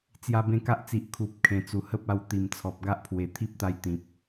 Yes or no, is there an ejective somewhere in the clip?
no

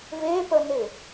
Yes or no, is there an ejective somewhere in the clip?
no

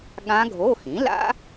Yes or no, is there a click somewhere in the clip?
no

